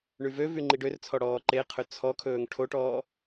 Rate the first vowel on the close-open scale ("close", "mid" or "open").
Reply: close